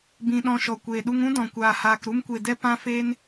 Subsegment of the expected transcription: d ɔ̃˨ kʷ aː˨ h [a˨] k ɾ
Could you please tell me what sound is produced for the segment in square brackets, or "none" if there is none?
aː˨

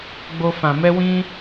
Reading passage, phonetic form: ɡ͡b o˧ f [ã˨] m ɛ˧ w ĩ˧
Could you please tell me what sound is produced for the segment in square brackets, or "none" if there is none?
ã˨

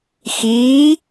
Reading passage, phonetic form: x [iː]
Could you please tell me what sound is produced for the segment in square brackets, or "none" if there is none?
iː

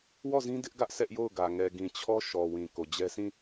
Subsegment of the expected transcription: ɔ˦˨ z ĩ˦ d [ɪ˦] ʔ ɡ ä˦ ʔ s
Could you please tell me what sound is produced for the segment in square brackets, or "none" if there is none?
ɪ˦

